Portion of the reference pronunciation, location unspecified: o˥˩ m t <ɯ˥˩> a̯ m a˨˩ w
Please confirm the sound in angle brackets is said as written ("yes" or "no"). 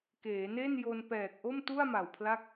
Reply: no